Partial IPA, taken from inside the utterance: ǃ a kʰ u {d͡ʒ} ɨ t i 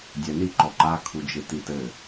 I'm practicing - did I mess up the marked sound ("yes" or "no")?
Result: no